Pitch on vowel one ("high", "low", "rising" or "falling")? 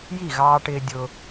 falling